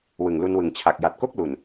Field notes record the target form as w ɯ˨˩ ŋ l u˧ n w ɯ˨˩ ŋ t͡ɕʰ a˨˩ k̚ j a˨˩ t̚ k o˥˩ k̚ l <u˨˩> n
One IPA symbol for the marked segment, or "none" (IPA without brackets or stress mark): u˨˩